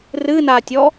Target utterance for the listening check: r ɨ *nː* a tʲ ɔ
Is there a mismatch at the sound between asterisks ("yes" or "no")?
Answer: yes